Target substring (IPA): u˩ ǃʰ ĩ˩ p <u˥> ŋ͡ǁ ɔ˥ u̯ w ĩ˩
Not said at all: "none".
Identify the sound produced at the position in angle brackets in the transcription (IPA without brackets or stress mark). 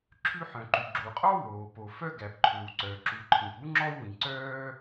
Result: u˥